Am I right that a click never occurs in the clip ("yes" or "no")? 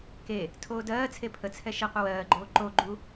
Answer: no